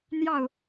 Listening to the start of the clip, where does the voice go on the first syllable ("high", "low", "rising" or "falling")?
falling